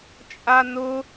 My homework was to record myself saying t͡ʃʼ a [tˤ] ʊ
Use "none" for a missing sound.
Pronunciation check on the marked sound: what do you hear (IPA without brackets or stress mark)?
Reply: n